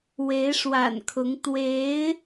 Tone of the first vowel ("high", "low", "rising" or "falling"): rising